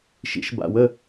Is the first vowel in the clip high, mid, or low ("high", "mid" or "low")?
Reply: high